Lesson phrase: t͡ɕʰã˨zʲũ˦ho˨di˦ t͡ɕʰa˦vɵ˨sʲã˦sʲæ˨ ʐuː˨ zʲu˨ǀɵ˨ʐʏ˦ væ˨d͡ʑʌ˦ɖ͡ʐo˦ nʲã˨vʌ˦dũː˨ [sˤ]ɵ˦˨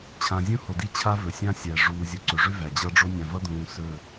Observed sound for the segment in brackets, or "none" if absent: s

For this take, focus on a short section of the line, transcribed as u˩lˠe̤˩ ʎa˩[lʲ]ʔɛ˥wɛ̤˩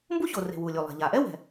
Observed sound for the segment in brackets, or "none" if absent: none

